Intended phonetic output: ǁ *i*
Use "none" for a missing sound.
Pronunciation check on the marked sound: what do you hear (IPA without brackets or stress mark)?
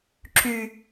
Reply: y